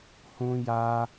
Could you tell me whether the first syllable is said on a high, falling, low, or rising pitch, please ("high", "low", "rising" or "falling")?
high